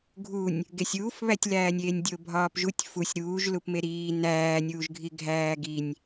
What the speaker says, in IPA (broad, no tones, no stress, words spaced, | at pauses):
ɡʱunʲ | ɡesʲuːfβætʲlæːnʲ eːnʲdʲobʱɒːpʒutʲ fusʲ ɾuːʒlupme ɾiː næːnʲuːʒɡʱi ɡʱæːɡinʲ